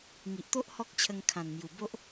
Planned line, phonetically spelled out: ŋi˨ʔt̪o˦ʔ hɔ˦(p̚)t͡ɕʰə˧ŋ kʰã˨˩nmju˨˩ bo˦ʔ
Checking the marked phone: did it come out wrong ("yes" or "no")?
yes